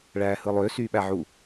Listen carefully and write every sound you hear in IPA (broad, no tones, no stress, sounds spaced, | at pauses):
ɭ æː h ɯ lˠ ø s yː ɓ æ ʕ u